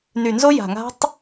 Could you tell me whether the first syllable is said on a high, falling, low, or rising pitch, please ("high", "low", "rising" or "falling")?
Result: low